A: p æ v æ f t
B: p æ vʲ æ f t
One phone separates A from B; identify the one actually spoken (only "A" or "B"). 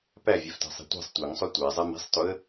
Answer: B